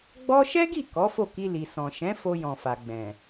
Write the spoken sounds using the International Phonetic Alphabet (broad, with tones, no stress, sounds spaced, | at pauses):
ɡ͡b ɔ˦ ʃ ɛ˦ ɡ i˦˨ k ɔ˨˦ f o˦˨ k i˧ l i˨ s ɔ̃˨ ʃ ɛ̃˨˦ f o˧ j ɔ̃˨ f a˨ ɡ͡b ɛ̃˨